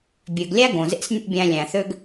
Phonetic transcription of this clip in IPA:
bʲ ø˨ ɡ lʲ æ˦ ɡ õ˨ z ḛ˦ s nʲ o̰˦ bʲ æ̃˧ lʲ æ̃˨ θ ø˦ ɡ

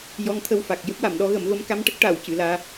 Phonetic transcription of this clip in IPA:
j ɔ˧˥ ŋ t̪ʰ ə˧ w f a˨˩ k̚ j ə˦˥ k̚ w a˨˩˨ m ɗ ɔ˧˥ ɣ ə˨˩˦ m v ə˧˥ m k a˧˥ m ʈ ə˦˥ k̚ ʈ a˨˩˨ w c ɨ˨˩˨ l aː˧

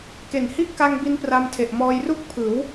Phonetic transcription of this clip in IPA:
k e˨˩ n h i˦˥ ʔ k a˧ ŋ b i˧ n p r a˧ m tʰ e˨˩ ʔ m ɔː˧ j r u˥˩ k̚ pʰ ɯː˩˦ w

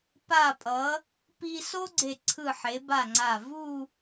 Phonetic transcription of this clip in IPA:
p a˧˩ pʼ ʌ˩˧ | p i˧ s o˥ ɡ͡ǀ e˧˩ ǀʰ ɯ˧˩ ħ e˩˧ b a˧˩ ŋ͡ǀ a˧˩ v u˥˧

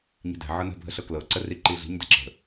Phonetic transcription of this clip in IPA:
ɲ i̤ d ɛ̤ ʕ ɤ n ə̤ bʱ ə ɬ ɤ k l ɤ ǀ ə r i ǃ i ɮ i̤ ɲ d ɛ ǁ ə̤

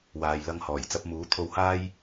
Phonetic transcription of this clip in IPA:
w aː˨ j l ɐ˧ ŋ h ɔː˨˩ j t͡s ɐ˧ p̚ m uː˨˥ t̪ʰ o˨˧ w h aː˧ j

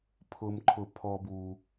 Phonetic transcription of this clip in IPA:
pʰ ʊ˧ m ǃʰ ʊ˧ pʰ ɔ˧ b u˧

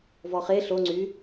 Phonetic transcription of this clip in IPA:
v ɔ χ e ɬ o ŋ͡ǀ y

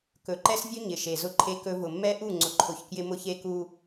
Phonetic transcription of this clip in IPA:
k ɵ˨ ǃ ɛ˦ s vʲ ɵ˦ ɲ ɪ˨ ʃ e˨ z ʊ˦ ǃʰ e˦ k ɵ˦ v ʊ˨ mː ɛ˦ ʔ u˦˨ ŋ͡ǀ ʊ˨ ǃʰ ʊ˨ ç k j ɪ˦ m ʊ˦ ç e˦ k u˦

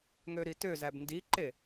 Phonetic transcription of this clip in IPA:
ŋ ø ɾ i t ø z æ b n d i ǃ e

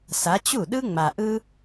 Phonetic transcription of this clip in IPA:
s a˨˦ t͡ɕ u˥˩ ɗ ɯ˥ ŋ͡m a˨ ʔ ɯ˥

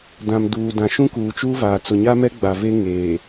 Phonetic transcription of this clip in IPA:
d ã˨ m d uː˨ d ã˨ ʃ ũ˦ k uː˨ t͡ʃ uː˦ v aː˨ t͡s ʊ˨ ɲ a˦ m ɛ˦ ɡ͡b a˨ v e˦ ŋ eː˨

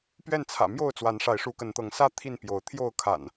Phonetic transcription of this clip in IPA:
p ɥ ɛ˥˨ n t͡sʰ ä̰˨˩ m j o˥˨ ʊ̯ t͡s w a˨˦ n ʂ a˨˦ ɪ̯ ʂ u˨˦ k ə˨˦ n t̪ ɤ˨˦ ŋ s ä˦ t̪ʰ i˥˨ n p j o˨˦ ʊ̯ t̪ʰ j o˥˨ ʊ̯ kʰ a̰˨˩ n

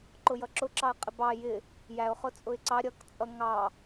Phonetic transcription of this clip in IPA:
ǃ ʊ j ʌ ǁ ʊ ǁ ɑ ə̯ qʼ ɪ b ɑ j ɪ | j æ ʊ̯ χ ʊ t͡sʼ ʊ ɪ̯ ǀ ɑ ɾʲ ʌ k t͡sʼ ʌ ŋ ɑ

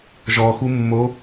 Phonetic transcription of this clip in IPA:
ʒ ɔ x u mː o

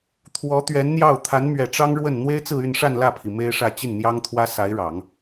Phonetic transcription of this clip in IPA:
t̪ʰ w ɔ˧˥ t̪ ɥ ɛ˧˥ n n̪ j ɑ˥˩ ʊ̯ t̪ʰ a˧˥ n m ɥ ɛ˨˩ ʈ͡ʂ ɑ˥ ŋ ɻ w ə˥˩ n n̪ w e˥ ɪ̯ t͡s ɹ̩˥˧ y˥˧ n ʂ a˥˧ n l ä˥˩ pʰ i˩ m e˥ ɪ̯ ʂ ä˥˧ t͡ɕ i˥˩ n n̪ j ɑ˥ ŋ t̪ʰ w ä˥ s a˧˥ ɪ̯ ɻ ɑ˨˩˦ ŋ

